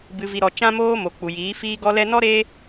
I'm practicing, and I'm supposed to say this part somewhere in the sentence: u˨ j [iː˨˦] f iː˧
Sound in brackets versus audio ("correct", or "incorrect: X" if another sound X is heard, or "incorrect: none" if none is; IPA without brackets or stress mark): correct